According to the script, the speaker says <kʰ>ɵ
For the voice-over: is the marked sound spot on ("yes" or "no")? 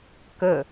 no